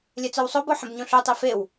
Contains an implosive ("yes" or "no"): no